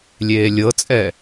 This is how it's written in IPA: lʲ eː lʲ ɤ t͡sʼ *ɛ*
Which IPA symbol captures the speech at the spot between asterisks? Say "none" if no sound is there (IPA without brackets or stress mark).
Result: ɛ